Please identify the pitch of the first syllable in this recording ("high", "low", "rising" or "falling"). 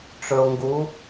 low